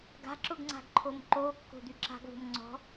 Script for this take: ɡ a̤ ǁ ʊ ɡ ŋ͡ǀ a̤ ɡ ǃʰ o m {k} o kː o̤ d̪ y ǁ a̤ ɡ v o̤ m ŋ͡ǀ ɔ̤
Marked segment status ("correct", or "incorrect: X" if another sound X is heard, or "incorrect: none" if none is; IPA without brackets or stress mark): incorrect: ǃ